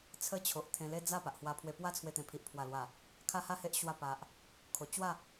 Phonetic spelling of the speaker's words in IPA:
t͡sʰ ə˦ t͡ɕʰ o˨ ʔ t̪ʰ ẽ˧ l e˦ d͡z a˥˧ p a˨ ʔ h w a˧ pʰ w e˧ p w a˦ t͡sʰ w e˧ t̪ ẽ˨˩ pʰ i˨ ʔ pʰ w a˨˩ l w a˨˩ | kʰ a˦ h a˥˧ h e˦ ʔ ɕ w a˥˧ p a˨ ʔ | kʰ o˧ t͡ɕ w a˥˧

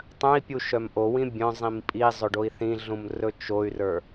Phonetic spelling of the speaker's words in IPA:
tˤ œ̃ i̯ pʲ u ʃ œ m ʔ o w ĩ bʲ œ̃ zˤ ĩ m pʼ i zˤ ɵ ɖ o i̯ θ ĩ ɮ ũ m r ɵ t͡ʃ o y̯ r ə˞

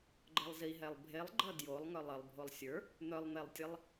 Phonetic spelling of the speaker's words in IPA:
ɡ͡ǃ ə lˠ z i ɦ ɛ lˠ bʱ e lˠ ɡ͡ǃ ʌ d j o lˠ ŋ œ lˠ ə lˠ bʱ o lˠ sʲ ə˞ | n̪ œ lˠ n̪ e lˠ tʲ e lˠ

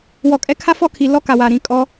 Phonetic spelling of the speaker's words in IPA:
w ɔ˨ kʼ ɛ˦ kʰ a˦ f ɔ˦ kʰ i˨ l ɔ˦ k a˨ w a˨ ɾ ĩ˨ kʼ ɔ˦

